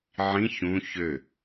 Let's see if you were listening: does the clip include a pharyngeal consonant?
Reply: yes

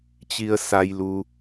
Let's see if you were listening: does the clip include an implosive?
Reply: no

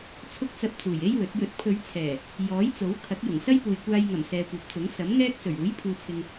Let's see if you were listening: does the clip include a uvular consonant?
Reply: no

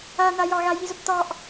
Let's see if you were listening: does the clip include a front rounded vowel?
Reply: no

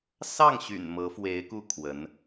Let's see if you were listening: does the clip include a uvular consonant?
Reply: no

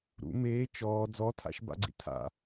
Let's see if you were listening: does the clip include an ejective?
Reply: no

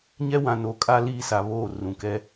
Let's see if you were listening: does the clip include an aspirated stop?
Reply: no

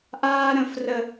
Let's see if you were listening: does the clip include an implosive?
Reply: no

